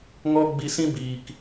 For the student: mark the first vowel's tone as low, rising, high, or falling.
high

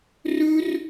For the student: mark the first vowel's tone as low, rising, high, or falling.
high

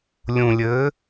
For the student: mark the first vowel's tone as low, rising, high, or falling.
low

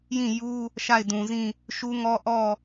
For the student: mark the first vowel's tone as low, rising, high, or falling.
falling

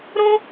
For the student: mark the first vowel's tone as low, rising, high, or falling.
high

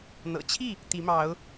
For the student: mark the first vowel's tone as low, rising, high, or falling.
low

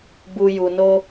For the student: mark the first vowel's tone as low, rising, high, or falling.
low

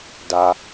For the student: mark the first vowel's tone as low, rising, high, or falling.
high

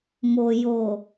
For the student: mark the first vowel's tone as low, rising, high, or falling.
low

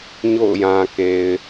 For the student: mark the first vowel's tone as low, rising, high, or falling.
falling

